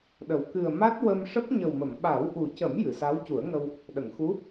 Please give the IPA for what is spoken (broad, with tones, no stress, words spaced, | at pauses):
ɗə˨˩w kɨ˨˩ə̯ ma˦˥t̚wə˧m ʂə˦˥k̚ ɲə˨˩wmə˨˩˨m ɓa˨˩˦w ʔu˨˩cə˨˩˦m jɨ˨˩˨sa˧˥wcu˨˩˦ə̯ŋə˧w | ɗə˨˩˨ŋxu˧˥